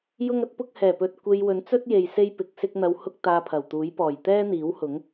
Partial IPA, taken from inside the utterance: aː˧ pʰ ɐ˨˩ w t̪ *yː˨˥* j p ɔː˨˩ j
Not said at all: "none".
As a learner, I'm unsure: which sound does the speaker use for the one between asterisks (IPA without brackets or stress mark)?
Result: uː˨˥